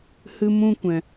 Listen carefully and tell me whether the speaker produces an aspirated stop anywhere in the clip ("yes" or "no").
no